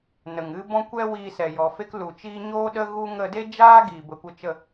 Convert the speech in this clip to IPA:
n ə˨ ŋ ɨ˦ b ɔ̃˦ kʷ ɛ˦ w iː˧ s ɛ˨ j ɔ˨ f e˦ k l u˨ t͡ʃ iː˦ ɲ oː˦ ɗ ə˦ ɣ u˦ ŋ ə˧ d e˦ d͡ʒ aː˦ ɡ iː˨ b ə˨ kʷ ə˧ t͡ʃ ə˦˨

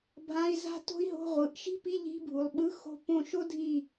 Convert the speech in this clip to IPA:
bʱ ã˧˥˧ i̯ z a̤˥ t o̤˥ i̯ ɦ o̤˧˥˧ ʁʷ ɯ˩˧ ʔ ʃ i̤˥ p i˧˥˧ ʎ i̤˧˥˧ bʱ u˩˧ lˠ ɓ ɯ˧˥˧ x o̤˦˨ p õ˦˨ ʃ o˥ dʱ i˦˨

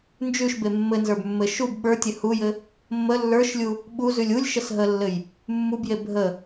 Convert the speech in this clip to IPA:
n d͡ʒ ʉ ʃ b e mː ɘ n z ə˞ b mː ɘ ʃ u b ɓ ə˞ tʲ ɘ h u j ɘ | mː ə lː ə˞ ʃ lʲ u | ɓ u z ʉ lʲ u lʲ ʃ ə s ɦ ə lː ɘ j | mː u b j e bʱ ə

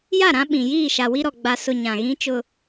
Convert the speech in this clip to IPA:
j a˦˨ ɾ ã˦ ɓ ĩ˨ j iː˦˨ ʃ a˨ w i˦ ɾ ɔ˨ ɡ͡b a˨ s ʊ˨ ɲ ã˨ ɣ ĩ˦ t͡ʃ ʊ˦

